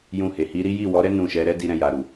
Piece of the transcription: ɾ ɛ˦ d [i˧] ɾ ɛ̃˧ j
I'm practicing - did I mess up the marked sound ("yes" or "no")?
no